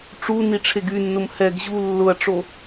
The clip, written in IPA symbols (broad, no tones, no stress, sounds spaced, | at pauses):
ʈ͡ʂ u n i ʈ͡ʂʰ e ɡ y nː ʊ m h ɛ ɡ ʑ u lː ʊ ɐ̯ ʈ͡ʂ o